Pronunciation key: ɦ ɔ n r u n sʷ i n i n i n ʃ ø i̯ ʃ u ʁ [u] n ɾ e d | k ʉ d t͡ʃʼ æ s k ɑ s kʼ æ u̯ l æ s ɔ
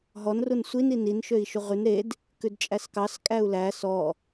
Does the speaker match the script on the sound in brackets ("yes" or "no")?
no